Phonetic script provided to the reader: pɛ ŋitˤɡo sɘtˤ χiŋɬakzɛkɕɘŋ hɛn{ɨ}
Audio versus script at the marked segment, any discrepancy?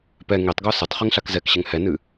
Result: no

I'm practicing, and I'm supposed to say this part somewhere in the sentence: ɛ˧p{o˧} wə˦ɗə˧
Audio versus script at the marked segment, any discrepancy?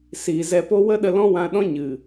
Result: yes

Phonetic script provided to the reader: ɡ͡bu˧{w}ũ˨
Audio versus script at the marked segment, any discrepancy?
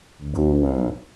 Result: no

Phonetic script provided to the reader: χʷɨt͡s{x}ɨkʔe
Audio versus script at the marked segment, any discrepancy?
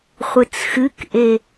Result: no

